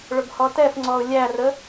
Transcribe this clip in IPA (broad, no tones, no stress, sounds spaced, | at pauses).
ɭ ʊ ɡ h ɔ t ɛ f ŋ͡ǀ ɔ ʊ̯ lʲ æ r ə